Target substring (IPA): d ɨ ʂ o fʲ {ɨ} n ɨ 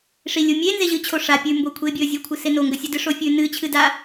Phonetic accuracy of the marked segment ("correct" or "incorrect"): incorrect